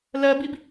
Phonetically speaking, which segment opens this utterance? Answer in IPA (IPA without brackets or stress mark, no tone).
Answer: l